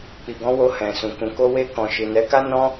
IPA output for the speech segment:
k͡p i˨ ɡ ɔ̃˨˦ w o˧ h ɛ̃˨ s ũ˨ k ũ˨ k o˧ w e˧ k ɔ̃˨ ʃ i˨ n ɛ˨˦ k a˦ n ɔ̃˦

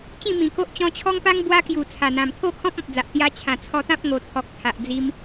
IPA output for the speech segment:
t͡ɕ ĩ˥˧ m ĩ˨˩ k o˦ ʔ t͡ɕ ɔ̃˧ t͡ɕʰ ɔ˦ ŋ p a˦ ŋ b w a˧ k j u˨˩ t͡sʰ a˨˩ n̪ ã˨˩ m t̪ʰ o˥˧ kʰ ɔ̃˦ p̚ ɔ̃˨ p̚ d͡z a˨ ʔ t̪ j a˧ t͡ɕʰ ã˨˩ t͡sʰ ɔ˧ t̪ ã˦ p̚ ŋ o˨˩ t̪ʰ ɔ˨ k̚ t̪ʰ a˨ ʔ d͡z i˧ m

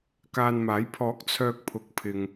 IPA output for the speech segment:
k aː˧ n m aː˨˥ j pʰ ɔː˨˥ k̚ t͡sʰ œː˧ k̚ pʰ ʊ˨˥ k̚ pʰ ɪ˨ ŋ

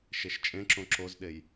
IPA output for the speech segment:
ʃ e ʃ t͡ʃʼ ẽ ǁ õ ǁ o z ɗ e j

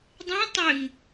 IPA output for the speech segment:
dˤ ẽ tˤ ʏ ŋ

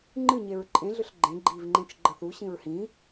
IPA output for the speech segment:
ŋ͡ǃ ɨ ɲ e ɹ ǃʼ ẽ ɮ ʏ ɬ ɡ͡ǃ ẽ ɡ͡ǃ i v ŋ͡ǃ ẽ t͡ʃ ɡ͡ǃ ə θ u ɕ ĩ ɹ h ĩ

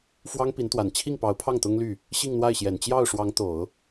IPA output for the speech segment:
f w ɑ˥ ŋ p i˧˥ n t̪ w a˨˩ n t͡ɕʰ i˥˩ ŋ p ɑ˧˥ ʊ̯ pʰ ɑ˥˩ ŋ t̪ ʊ˥ ŋ l y˥˩ | ɕ i˥˧ ŋ n̪ w a˥˩ ɪ̯ ɕ j ɛ˨˩ n t͡ɕ j ɑ˥˩ ʊ̯ ʂ w ɑ˧˥ ŋ t̪ o˨˩˦ ʊ̯

